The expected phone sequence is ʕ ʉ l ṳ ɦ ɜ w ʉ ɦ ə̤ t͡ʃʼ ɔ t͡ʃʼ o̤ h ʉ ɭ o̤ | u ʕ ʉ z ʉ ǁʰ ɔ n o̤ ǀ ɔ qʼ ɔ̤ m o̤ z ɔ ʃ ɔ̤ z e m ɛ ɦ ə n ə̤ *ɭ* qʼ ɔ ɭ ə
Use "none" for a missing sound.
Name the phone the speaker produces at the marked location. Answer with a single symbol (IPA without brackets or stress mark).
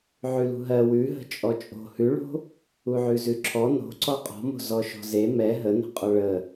none